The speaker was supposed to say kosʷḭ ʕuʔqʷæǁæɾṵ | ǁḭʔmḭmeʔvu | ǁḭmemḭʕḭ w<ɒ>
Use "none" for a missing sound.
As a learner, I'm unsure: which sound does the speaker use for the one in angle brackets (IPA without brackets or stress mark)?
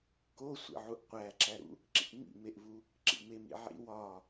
ɒ